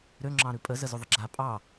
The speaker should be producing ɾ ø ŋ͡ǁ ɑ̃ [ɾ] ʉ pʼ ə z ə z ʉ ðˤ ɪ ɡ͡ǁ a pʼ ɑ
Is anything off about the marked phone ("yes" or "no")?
no